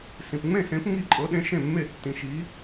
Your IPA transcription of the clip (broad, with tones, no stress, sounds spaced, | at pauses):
s ĩ˧ p ŋ͡m ẽ˥˨ s ẽ˧˥ p ŋ i˥˨ ǃʼ ɤ˧˥ ɗ ẽ˧˥ ʃ ẽ˥˨ mː e˥˨ tː ĩ˧ ʃ i˧˥